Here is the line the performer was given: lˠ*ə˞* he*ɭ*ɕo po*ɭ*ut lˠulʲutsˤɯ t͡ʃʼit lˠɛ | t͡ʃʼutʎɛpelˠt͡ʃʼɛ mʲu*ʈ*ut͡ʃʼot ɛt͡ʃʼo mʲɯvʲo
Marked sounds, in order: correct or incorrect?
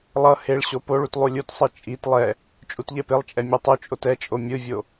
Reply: incorrect: ʌ, correct, correct, incorrect: tˤ

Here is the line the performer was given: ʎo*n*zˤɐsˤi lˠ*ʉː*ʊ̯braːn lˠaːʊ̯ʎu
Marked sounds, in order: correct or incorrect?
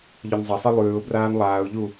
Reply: correct, correct

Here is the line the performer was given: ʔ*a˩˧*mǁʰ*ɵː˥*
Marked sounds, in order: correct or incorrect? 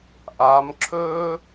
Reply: incorrect: aː˩˧, correct

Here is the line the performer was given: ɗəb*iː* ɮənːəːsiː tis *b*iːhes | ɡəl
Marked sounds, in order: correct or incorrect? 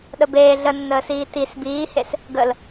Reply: incorrect: eː, correct

